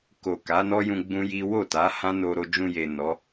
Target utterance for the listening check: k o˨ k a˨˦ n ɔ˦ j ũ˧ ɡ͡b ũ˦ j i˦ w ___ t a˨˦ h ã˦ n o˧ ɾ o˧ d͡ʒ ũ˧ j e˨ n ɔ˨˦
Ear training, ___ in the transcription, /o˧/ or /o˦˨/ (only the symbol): o˦˨